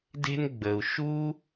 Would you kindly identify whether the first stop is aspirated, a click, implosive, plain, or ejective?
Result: plain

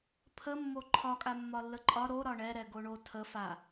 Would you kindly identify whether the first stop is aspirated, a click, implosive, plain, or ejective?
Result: aspirated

